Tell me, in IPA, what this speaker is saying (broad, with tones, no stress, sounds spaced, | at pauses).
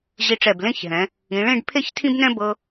ʑ i˧ ʈ͡ʂ ɛ˧˩ b l ẽ˥˧ ç ɦ ɛ̃˩˧ | ĩ˩˧ ɭ ẽ˥˧ ɖ pʰ e˥ ç tʰ ĩ˥ b n ɛ̃˥ b ɤ˧